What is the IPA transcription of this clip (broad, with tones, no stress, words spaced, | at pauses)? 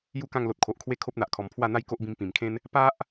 ju˥˧ kã˥˧ŋlo˨t̚kʰo˨ʔkʰwe˦ kʰo˦p̚n̪a˨ʔkʰɔ˨˩m pʰwa˥˧n̪a˦jko˦ʔbĩ˧m pĩ˨˩mkʰẽ˦n | pa˦ʔ